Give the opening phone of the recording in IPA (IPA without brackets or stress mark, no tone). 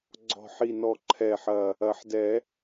ɡ͡ǀ